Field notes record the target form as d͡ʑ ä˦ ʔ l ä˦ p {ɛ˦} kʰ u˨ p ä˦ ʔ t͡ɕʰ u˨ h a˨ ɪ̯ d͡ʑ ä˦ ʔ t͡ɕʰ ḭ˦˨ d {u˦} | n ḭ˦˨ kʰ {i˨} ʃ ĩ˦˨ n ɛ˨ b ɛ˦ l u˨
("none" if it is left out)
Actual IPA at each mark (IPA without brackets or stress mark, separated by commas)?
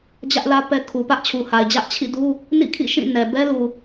ɛ˦, u˦, ḭ˦˨